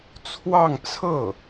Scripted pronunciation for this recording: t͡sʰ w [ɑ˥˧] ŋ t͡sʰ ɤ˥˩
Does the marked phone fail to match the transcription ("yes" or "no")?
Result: no